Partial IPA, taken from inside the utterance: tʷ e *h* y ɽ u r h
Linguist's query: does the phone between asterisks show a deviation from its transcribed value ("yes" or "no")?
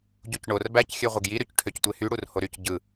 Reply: no